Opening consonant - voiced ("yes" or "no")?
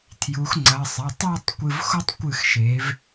no